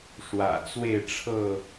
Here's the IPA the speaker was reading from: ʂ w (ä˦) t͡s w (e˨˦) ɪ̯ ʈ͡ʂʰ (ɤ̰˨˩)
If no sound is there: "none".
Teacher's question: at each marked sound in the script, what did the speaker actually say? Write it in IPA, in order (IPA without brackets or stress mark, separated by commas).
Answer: ä̰˨˩, e˥˨, ɤ˥˨